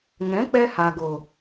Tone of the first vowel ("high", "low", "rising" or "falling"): rising